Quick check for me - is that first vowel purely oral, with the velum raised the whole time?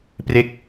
yes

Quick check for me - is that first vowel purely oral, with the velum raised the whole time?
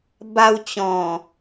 yes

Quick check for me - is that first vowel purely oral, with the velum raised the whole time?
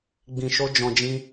no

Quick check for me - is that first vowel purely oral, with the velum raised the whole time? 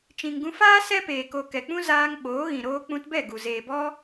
no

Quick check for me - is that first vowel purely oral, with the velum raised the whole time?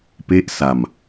yes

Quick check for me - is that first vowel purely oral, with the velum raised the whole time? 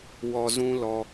yes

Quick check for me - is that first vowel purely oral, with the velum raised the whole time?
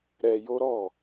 yes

